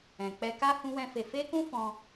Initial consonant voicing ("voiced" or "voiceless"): voiceless